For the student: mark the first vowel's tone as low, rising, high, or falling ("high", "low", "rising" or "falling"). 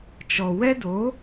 low